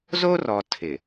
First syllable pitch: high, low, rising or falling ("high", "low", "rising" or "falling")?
high